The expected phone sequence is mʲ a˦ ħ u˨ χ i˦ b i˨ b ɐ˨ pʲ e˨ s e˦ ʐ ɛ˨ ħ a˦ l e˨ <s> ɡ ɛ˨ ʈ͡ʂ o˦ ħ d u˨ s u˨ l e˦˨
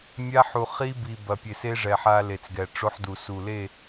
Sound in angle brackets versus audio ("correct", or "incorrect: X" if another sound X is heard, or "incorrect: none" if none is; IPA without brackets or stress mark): incorrect: t͡s